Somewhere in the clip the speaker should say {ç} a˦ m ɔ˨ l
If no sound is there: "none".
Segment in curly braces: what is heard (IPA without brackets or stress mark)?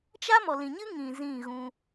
t͡ʃ